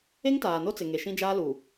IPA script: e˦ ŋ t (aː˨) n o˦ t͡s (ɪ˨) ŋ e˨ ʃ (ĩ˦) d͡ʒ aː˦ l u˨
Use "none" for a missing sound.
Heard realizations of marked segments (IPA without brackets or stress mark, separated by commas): aː˨, ɪ˨, ĩ˦